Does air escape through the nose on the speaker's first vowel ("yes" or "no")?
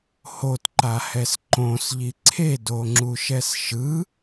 no